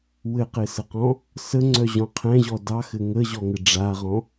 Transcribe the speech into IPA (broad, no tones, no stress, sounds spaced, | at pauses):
w ɘ q ɪ s ə q ɔ̃ | s ə ŋ͡ǀ œ ʑ ɔ̃ qʰ ɛ̃ ʑ ɔ d ɑ x ɘ ŋ ə ʑ ɔ ŋ ɘ ɖ͡ʐ a ʁ ɔ̃